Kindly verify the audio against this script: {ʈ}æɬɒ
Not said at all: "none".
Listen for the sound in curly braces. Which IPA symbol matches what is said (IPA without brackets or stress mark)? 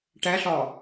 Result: ʈ